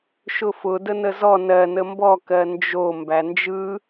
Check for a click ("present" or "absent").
absent